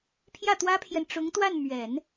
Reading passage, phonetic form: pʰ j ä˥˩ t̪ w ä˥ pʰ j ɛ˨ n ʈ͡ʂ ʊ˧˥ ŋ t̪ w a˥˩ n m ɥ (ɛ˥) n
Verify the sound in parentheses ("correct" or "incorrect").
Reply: incorrect